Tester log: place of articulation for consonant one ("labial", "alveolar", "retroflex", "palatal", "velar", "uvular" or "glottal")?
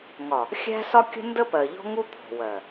velar